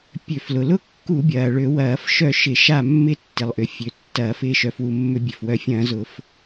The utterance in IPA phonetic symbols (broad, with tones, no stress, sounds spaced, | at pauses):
pʲ ø˧˩˧ f l ʊ˩ l ʊ˥˨ kː u˧˩˧ bʲ ɐː˩ ɭ ø˧˩˧ w ɐː˧˩˧ f ʃ œ˥˨ ʃ ɪ˧˩˧ ʃ a˥˨ mː ɪ˥˨ tː ɪ˩ lˠ ʔ ʏ˩ fʲ ø˩ tː ɐː˧˩˧ f ɪː˥˨ ʃ œ˩ f w u˩ mː ʏ˧˩˧ bʲ ø˩ f w œ˧˩˧ fʲ ɐ̃ː˧˩˧ z ʊ˧˩˧ f